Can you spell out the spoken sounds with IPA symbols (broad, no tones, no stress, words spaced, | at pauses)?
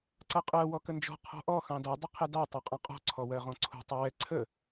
ǀʌqʼɜ wɔkənd͡ʒɔ̤ qʰɔ̤ʔɔ xɑ̃dɔ dˤɪqʰɛdɑ tˤɑqʼɑ̃qʼɔ̤ ǀʰɔwɜʁɔ̃ǀʰṳ tˤʌwɛ ǀʰə